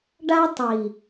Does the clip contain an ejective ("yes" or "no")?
no